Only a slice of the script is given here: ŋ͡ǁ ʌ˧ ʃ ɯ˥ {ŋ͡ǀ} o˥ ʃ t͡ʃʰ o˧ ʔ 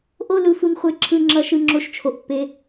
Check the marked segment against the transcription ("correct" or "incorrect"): incorrect